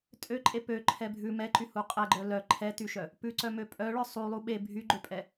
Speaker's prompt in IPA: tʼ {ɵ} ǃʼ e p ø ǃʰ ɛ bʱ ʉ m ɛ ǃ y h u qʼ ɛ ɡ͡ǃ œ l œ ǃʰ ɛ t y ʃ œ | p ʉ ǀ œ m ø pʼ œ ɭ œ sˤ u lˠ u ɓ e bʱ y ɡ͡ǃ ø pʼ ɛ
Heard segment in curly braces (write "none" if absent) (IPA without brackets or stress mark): ø